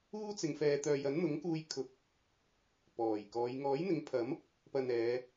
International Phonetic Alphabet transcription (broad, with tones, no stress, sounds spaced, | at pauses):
uː˥ t͡s ɪ˨ ŋ f ɛː˨ t̪ œː˨ j ɐ˨˥ n n̪ ʊ˨˥ ŋ k uː˧ j kʰ ʊ˨˥ k̚ | p ɔː˨˩ j k ɔː˨˧ j ŋ ɔː˨˥ j n̪ ɪ˨˥ ŋ pʰ ɐ˨˥ m | p ɐ˨ n ɛː˨˧